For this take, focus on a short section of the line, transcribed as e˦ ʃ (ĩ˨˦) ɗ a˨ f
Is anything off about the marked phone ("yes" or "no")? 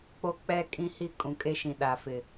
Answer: yes